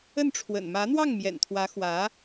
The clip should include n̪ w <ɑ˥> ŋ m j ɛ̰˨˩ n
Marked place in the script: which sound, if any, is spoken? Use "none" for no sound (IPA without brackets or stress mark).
ɑ˥˩